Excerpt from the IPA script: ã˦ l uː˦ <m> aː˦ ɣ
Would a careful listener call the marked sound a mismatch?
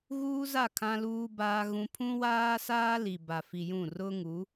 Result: yes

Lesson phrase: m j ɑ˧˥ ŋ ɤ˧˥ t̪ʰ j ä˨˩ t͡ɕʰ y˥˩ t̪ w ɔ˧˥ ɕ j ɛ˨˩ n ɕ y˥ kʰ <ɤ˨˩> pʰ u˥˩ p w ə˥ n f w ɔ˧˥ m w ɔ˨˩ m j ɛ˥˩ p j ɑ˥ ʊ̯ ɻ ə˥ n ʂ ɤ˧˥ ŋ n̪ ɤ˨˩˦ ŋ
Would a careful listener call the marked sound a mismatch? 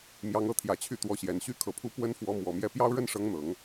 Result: no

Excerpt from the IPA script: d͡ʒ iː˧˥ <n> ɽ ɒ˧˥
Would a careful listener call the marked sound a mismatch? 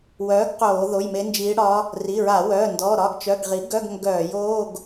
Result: yes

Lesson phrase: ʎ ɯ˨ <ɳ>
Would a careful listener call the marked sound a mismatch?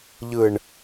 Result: no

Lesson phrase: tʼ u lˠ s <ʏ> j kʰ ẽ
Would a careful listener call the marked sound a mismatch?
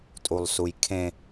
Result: yes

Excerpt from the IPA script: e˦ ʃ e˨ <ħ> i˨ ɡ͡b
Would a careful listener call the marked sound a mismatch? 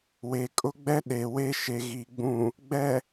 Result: yes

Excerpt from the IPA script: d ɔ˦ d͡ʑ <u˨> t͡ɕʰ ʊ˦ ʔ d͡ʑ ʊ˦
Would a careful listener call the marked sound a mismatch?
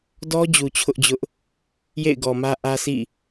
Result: no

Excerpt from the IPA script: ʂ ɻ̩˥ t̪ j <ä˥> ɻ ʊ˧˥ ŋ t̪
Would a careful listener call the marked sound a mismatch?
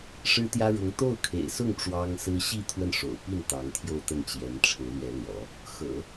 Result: no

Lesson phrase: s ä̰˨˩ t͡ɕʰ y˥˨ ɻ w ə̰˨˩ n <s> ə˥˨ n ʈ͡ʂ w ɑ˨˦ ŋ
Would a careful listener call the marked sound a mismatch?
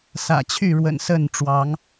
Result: no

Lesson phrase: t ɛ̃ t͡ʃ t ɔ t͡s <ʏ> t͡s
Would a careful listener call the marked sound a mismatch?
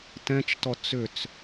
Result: no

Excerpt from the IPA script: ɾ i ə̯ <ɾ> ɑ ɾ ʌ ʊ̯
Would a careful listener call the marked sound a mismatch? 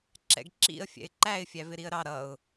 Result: no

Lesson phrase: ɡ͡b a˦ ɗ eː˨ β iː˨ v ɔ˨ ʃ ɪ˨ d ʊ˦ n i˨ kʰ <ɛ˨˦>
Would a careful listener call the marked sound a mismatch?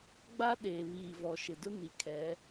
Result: no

